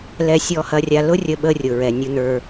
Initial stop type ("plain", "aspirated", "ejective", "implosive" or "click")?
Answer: implosive